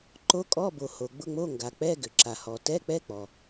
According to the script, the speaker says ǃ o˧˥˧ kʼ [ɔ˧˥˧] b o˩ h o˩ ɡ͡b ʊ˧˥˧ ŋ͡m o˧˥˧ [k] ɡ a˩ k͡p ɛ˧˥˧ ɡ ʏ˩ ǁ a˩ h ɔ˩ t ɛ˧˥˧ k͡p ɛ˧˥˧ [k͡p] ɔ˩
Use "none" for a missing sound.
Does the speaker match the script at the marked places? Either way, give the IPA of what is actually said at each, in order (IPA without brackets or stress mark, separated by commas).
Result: ɔ˧˥˧, ŋ, k͡p